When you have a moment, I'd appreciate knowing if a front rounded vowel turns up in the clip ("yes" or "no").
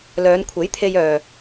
yes